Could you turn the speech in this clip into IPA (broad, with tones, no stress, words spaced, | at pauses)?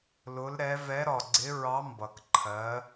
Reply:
lʊ˨˦lɾɛ˨˦ vɛ˨˦ ɾɒ˨˩ɡ͡ǀɪ˨˦ ɹɑ˨˦ mbʌ˨˩kǃʰɜ˨˦